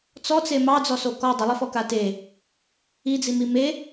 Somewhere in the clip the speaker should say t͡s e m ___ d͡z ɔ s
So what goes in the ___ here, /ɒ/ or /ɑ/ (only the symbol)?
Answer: ɑ